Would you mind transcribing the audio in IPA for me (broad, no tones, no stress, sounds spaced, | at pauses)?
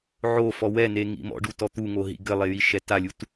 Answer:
ʕ o f ɔ w ɛ n e ŋ ḭ m ɔ̰ ɖ u t ɔ t̪ u ŋ o ɦ ḭ ɡ ɘ lˠ e j i ʃ ɛ t a lʲ u t